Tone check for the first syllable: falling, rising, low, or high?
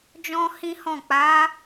high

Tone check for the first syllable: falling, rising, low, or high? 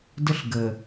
high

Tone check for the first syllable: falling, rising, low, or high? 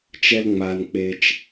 high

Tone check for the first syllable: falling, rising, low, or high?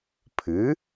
rising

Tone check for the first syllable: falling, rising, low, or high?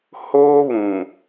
high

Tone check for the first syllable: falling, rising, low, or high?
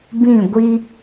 falling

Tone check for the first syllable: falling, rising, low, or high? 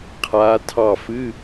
rising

